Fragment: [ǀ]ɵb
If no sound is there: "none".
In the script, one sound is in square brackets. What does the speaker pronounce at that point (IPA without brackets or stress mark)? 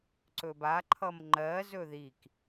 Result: ǀ